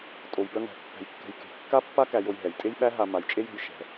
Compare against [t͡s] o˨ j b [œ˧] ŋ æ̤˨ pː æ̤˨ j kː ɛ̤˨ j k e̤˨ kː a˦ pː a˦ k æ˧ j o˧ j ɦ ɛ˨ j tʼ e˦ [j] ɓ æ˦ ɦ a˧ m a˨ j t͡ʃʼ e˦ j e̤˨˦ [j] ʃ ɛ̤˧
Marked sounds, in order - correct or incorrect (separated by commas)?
incorrect, correct, correct, correct